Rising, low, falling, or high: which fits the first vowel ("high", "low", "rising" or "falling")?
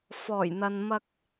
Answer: low